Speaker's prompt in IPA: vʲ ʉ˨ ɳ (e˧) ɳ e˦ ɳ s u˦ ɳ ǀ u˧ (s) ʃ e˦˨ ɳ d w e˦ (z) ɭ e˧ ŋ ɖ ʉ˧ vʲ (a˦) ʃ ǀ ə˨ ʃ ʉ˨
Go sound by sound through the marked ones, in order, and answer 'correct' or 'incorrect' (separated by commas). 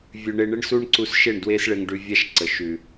correct, correct, incorrect, correct